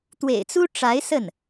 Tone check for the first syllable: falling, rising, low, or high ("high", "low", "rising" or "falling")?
low